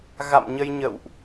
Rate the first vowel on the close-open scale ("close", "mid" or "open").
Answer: open